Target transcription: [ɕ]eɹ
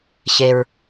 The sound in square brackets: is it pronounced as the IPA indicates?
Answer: yes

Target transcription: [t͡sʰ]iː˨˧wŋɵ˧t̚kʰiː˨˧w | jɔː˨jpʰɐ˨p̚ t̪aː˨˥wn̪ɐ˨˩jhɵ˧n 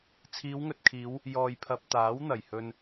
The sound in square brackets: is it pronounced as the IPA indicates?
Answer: yes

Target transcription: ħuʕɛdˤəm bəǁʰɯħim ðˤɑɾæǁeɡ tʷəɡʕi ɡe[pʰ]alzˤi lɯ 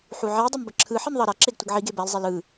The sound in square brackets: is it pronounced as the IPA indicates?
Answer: no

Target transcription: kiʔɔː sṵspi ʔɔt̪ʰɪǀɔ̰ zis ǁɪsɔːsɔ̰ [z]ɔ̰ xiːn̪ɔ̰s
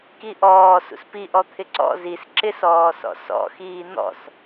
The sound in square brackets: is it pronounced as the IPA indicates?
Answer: no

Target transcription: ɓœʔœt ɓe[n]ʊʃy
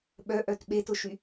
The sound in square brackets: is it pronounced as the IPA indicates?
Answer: no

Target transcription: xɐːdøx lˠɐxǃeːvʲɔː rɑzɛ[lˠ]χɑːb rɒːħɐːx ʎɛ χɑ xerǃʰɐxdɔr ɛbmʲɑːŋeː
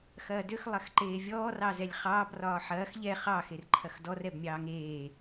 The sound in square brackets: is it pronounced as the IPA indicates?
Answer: no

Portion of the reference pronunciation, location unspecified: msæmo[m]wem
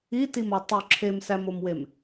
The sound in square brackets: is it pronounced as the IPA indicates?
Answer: yes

